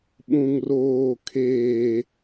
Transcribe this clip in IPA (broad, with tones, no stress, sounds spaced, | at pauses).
ɓ ũ˨ ŋ r oː˨ kʰ eː˨